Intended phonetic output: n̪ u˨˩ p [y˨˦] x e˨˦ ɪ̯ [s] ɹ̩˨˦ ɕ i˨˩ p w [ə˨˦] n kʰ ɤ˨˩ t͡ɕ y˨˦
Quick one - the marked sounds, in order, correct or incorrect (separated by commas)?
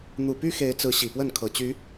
incorrect, incorrect, incorrect